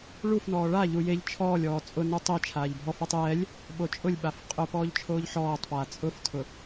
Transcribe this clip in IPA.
ɭ u f n ɔː ɭ a ʎ u j e ʎ t͡ʃʰ ɔː lʲ ɔː t͡sʼ ʊ n u tˤ i t͡ʃʰ aː ʎ bʱ ɔ f a tˤ j ɛ lʲ | ɓ o t͡ʃʼ ʊ lʲ ɓ a f qʼ ʊ p ɔː ʎ t͡ʃʰ oː ʎ ħ ɔː tˤ p aː t͡sʼ ʊ f tʰ ʊ

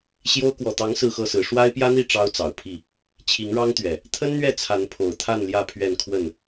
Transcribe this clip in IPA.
ɕ j o˦ ʊ̯ k w ɔ˨˩ t̪ ɑ˨˦ ŋ s ɹ̩˥˨ x ɤ˥˨ s ɹ̩˨˦ ʂ w a˦ ɪ̯ p j ä˦ n̪ i˥˨ ʈ͡ʂ ɑ˦ ʊ̯ t͡s ɑ˨˩ ʊ̯ pʰ i˥˨ | t͡ɕʰ i˨˦ ŋ ɻ ɑ˦ ŋ t̪ ɥ ɛ˨˩ | t̪ʰ ə˦ n n̪ ɥ ɛ˥˨ t͡sʰ a˨˦ n pʰ o˨˩ ʊ̯ t̪ʰ a˥˨ n l j ä˥˨ pʰ ɥ ɛ˥˨ n kʰ w ə˥˨ n

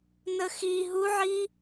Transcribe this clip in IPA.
n ə x i ɦ u ʕ i

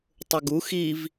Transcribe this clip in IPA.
tˤ ʊ ɡ u x i v

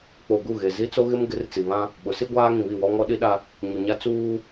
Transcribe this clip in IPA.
k͡p o˨ ɡ u˦˨ ɣ e˨ z i˦ t͡s o˦ ɣ ɪ˦ m ɡ ɪ˨˦ r t͡s i˨ β ã˦ | ɓ ʊ˨˦ s i˦ ɡʷ aː˦ ŋ ĩ˨ β i˦˨ w ɔ˦ ŋ ɔ˦ ɗ i˦ ɗ a˦ | ɲ u˨ ɲ a˦ t͡s uː˦

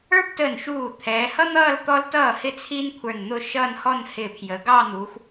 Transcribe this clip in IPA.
ə˞˥ p t əː˧˩ n ʃ uː˧˩ t̪ʰ ɛː˩˧ h ʌ˥ n̪ ʌː˥˧ l t̪ ɔ˧ l t ʌː˧˩ h ɪ˥ t͡sʰ i˥ n kʷʰ ə˞˧˩ n n̪ ʊ˥˧ ʃ ʌː˥˧ n h ɔ˥˧ n h ɪː˧˩ pʰ j ə˩˧ ɡ ɑː˥˧ n̪ uː˩˧ xʷ

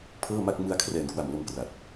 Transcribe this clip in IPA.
pʰ ɤː˥˩ m a˥˩ k̚ m ɯ˧ a̯ kʰ r ɛː˨˩ n k w a˨˩ m l o˧ m k r a˨˩ t̚

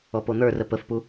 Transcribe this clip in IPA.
ɔ p o n̪ ə˞ r ə p ə f p u

